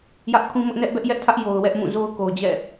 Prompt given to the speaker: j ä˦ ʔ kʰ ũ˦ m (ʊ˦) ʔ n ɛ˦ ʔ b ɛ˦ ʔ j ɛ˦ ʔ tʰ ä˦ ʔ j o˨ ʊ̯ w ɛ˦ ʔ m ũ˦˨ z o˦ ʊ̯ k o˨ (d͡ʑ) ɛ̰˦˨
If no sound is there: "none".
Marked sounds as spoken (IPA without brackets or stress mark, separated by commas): ʊ˦, d͡ʑ